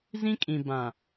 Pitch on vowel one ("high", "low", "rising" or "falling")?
high